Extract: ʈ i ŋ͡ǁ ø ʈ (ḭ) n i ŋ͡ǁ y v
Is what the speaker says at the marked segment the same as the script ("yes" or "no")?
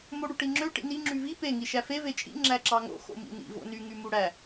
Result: yes